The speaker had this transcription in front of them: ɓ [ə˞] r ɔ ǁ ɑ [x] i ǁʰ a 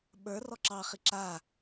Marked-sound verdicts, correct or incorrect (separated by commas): correct, incorrect